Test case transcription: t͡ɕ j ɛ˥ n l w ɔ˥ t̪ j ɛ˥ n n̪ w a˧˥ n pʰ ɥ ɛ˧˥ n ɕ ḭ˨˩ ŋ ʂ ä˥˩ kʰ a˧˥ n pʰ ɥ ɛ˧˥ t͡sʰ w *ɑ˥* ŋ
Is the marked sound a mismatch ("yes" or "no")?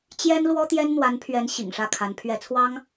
no